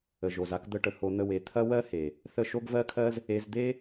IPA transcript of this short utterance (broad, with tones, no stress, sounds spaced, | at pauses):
ə˨ ʒ o˨ z a˧ k d̪ ə˧ ʈ ə˨ h o˧ n̪ ə˧ w e˨˦ t̪ʰ ɐ˦ w ɜ˦ h e˨ | θ ə˦˨ ʃ o˦ ɡ v ɜ˦ kʰ ɜ˦ z | e˧ z d̪ e˦